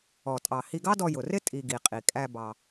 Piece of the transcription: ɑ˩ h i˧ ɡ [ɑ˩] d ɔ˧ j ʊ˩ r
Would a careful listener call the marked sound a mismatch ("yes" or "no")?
yes